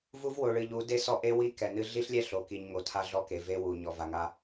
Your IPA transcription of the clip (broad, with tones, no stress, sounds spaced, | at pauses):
v u˦ v w o˨ ɭ ɨ˨ ʎ u˨˦ d e˦ s ɔ˦ ʔ e˦ w i˦ k ɛ˨ n ɨ˦ ɮ i˦ ɬ lʲ ɛ˦ ɬ o˨ k i˨ ɲ ŋ o˨ tʰ a˦ ɮ ɔ˦ k e˨ v e˦ w u˨ ɲ ɔ˨ v a˨ ŋ a˦